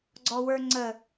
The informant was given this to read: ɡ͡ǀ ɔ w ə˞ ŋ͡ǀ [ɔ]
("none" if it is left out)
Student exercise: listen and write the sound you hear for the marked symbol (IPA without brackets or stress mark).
ə